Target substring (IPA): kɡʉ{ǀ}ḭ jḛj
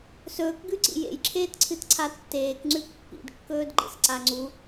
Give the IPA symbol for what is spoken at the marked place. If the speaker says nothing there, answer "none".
ǀ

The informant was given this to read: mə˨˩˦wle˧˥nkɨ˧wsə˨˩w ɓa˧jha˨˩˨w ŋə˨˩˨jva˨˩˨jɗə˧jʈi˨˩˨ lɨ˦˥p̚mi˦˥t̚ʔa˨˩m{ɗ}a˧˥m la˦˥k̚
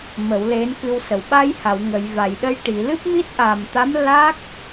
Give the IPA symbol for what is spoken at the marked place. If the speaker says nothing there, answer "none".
t̪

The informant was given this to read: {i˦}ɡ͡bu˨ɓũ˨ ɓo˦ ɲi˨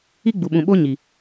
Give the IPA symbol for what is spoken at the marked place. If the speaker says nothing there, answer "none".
i˦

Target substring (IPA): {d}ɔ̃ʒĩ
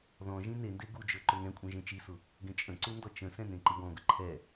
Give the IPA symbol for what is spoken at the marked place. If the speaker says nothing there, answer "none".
ð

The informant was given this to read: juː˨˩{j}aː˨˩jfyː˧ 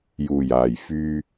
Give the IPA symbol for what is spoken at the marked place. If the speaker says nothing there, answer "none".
j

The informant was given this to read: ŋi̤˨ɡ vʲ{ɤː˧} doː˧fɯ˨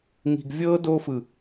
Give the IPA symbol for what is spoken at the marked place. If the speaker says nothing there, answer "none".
ɤː˧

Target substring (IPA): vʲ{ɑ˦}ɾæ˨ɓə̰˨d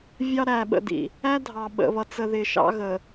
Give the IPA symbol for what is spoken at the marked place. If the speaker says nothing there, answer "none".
ɑ˦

